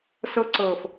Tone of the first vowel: high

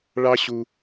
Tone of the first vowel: high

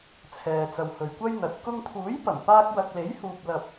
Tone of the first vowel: low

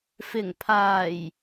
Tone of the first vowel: low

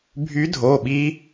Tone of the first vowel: rising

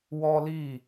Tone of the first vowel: high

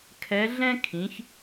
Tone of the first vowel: rising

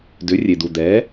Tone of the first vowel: rising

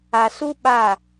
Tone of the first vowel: low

